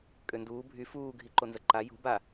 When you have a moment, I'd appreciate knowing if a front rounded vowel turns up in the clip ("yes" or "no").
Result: yes